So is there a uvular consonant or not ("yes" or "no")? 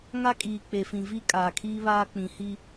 no